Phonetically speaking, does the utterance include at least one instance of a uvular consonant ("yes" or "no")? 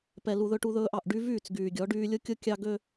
no